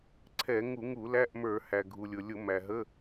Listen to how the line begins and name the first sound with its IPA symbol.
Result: ǀʰ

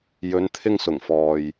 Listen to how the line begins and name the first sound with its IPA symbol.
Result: j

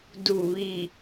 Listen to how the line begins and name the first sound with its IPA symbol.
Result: d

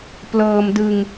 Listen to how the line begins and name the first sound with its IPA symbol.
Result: p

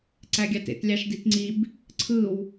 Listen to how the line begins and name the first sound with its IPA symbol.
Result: ǀ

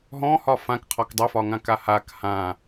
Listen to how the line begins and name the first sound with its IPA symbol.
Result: ɦ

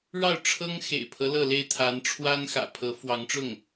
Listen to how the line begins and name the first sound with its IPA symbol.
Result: ɻ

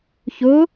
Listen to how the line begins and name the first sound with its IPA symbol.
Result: ç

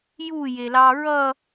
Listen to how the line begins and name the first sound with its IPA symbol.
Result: j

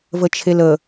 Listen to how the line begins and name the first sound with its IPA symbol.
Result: v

